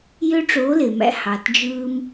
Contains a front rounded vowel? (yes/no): yes